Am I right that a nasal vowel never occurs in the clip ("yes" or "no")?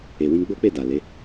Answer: no